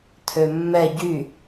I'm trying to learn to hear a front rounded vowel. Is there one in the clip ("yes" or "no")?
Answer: yes